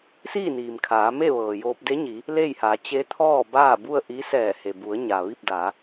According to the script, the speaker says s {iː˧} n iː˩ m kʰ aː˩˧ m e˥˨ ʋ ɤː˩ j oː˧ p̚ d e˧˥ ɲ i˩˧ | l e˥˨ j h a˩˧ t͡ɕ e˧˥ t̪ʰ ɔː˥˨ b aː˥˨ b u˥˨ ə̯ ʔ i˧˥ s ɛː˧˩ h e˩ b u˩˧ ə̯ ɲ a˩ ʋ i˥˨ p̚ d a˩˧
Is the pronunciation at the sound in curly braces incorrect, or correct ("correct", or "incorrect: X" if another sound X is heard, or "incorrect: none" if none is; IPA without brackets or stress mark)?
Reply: incorrect: iː˥˨